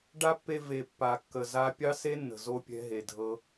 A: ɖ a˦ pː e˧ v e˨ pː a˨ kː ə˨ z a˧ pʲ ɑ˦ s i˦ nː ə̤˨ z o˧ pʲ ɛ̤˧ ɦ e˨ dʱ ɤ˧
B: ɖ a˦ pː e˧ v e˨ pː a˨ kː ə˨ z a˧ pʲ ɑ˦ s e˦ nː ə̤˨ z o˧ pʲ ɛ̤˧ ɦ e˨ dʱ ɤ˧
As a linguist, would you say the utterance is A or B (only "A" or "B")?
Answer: B